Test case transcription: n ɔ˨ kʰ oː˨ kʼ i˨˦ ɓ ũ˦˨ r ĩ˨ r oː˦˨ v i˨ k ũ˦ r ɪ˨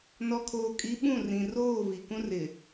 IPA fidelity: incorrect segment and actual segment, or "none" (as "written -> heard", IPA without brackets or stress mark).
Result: none